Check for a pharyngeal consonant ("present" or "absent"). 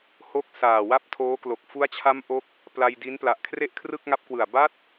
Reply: absent